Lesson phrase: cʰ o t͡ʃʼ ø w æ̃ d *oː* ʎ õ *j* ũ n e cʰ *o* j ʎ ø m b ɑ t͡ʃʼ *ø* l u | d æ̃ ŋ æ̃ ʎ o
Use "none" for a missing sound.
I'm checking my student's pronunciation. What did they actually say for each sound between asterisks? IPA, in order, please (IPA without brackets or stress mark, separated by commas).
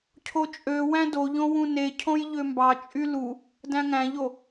o, w, õ, y